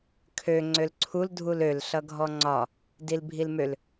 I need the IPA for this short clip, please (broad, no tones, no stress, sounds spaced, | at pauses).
kʰ ø ŋ͡ǀ ø l ǀʰ u l dʱ u l ø l ɬ ʌ ɡʱ ɔ ŋ͡ǀ ɒ | d i l bʱ i l m ø l